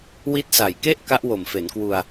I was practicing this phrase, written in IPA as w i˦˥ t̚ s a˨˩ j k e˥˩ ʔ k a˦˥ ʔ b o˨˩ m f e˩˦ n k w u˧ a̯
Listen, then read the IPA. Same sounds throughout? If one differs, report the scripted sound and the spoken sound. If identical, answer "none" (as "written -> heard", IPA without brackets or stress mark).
b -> w